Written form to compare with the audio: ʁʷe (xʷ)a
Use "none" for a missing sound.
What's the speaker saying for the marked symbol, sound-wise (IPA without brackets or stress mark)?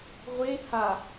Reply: h